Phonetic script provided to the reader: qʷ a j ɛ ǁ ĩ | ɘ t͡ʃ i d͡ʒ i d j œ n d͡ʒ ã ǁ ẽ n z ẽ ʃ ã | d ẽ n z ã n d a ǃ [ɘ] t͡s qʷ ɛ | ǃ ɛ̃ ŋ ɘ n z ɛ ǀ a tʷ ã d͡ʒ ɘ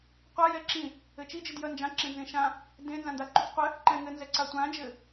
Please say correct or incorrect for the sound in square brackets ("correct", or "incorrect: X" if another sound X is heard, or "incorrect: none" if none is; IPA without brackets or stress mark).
incorrect: ʉ